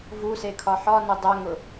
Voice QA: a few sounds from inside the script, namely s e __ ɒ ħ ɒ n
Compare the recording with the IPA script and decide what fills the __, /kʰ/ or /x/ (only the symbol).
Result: kʰ